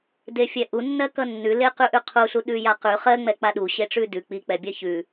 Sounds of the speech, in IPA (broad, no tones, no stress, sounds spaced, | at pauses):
d e fʲ ɛ ʔ u nː ɜ k ʌ nː ʉ l e q ʉ ʔ ʉ qʰ u ɬ u ɗ ʉ j a q ʉ χ ɜ ŋ͡m ɛ k͡p a ɗ u ɕ e ʈ͡ʂ ʉ d ʉ k͡p i k͡p ɛ bʲ ɜ ç ʉ